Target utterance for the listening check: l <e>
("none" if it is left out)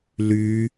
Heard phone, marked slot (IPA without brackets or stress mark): y